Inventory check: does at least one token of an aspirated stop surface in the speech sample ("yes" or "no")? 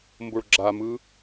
no